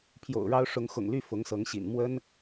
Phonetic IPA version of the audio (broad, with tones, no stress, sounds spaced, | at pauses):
pʰ j o̰˨˩ ʊ̯ ɻ ɑ˥ ʊ̯ ʂ ʊ˧˥ ŋ x ʊ̰˨˩ ŋ l y˥˩ f ʊ˧˥ ŋ s ɤ˧˥ ŋ ɕ ḭ˨˩ n m w ə˥ n